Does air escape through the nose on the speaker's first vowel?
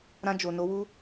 yes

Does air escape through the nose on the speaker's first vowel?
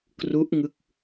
no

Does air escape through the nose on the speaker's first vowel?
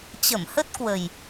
no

